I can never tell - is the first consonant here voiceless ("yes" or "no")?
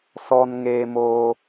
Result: yes